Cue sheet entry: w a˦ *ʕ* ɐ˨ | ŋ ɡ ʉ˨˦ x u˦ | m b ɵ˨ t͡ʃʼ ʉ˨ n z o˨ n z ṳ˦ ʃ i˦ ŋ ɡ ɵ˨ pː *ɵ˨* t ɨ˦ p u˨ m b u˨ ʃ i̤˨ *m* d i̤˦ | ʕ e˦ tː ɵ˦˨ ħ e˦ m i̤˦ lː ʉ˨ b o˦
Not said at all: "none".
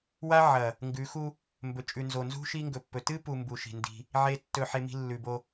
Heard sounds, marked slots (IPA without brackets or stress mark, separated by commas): ʕ, ɵ˨, n